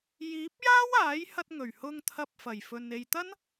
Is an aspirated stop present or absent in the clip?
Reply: present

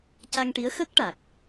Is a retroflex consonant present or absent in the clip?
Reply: present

